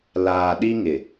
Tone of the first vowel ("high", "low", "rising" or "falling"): low